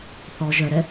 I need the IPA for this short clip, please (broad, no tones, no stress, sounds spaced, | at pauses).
θ ɔ ʒ œ ɾ ɛ